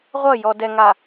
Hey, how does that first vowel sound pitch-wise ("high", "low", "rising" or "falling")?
falling